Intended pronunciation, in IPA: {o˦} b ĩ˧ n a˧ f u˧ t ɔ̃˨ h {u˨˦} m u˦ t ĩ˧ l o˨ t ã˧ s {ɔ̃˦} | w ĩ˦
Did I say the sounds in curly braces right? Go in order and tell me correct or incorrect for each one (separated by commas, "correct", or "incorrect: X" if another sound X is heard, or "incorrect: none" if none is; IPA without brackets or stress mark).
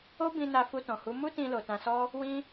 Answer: correct, correct, incorrect: ɔ˦